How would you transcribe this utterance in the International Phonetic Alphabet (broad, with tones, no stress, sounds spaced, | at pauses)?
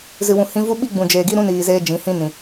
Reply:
z ɨ˨ w ũ˨ h ĩ˧ v u˦ ɓ i˦ ɡ͡b ũ˨ d͡ʒ eː˨ ɡ i˦ ɾ ũ˦ n iː˨ z eː˧ d͡ʒ ĩ˨˦ h ĩ˦ n ĩ˨